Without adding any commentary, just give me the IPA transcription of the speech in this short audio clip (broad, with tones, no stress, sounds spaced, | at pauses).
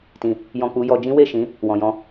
t ĩ˨ | j ɔ̃˧ k͡p u˧ j ɔ˧ d͡ʒ ĩ˦ w e˦˨ ʃ ĩ˨˦ | w ɔ̃˨ j ɔ̃˨˦